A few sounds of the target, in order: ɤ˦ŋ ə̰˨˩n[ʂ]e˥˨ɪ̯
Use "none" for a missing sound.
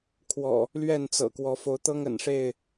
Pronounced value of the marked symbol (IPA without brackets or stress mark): ʂ